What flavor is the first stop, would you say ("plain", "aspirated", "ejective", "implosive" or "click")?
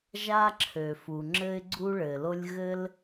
click